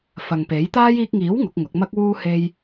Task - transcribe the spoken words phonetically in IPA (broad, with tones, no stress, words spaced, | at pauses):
fɐ˨ŋ pe˨˥jt̪aː˥j iː˧k̚ŋiː˨˥w ŋʊ˨˥k̚ŋʊ˨˥k̚ mɐ˥k̚wuː˥ he˥j